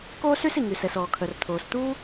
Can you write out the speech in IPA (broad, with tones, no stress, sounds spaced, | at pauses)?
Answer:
k oː˥ s y˥ s i˩ ŋ y˩ s ɛ˩ s ɔː˩ kʰ œ˩ r t̪ʰ oː˩ s t̪ uː˥